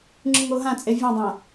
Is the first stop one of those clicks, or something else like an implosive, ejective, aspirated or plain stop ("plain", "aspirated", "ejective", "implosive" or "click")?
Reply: click